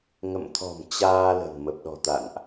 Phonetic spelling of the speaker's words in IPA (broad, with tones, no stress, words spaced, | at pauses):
ŋə̰˧˨mt̪ʰɔ̤˨˩m t͡ɕaː˧lə̤˨˩n mə˨˩p̚ɗɔ̤˨˩t̪a̰˧˨nʔ